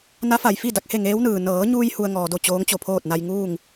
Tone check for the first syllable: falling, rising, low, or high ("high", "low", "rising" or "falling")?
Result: rising